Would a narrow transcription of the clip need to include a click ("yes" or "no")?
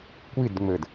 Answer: no